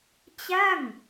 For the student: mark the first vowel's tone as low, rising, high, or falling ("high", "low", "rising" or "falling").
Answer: falling